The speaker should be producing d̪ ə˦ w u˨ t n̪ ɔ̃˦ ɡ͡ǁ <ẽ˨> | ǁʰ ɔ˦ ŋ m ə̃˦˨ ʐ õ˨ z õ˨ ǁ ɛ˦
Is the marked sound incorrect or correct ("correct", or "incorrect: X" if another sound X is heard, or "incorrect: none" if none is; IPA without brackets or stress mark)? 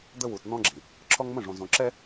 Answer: incorrect: ĩ˨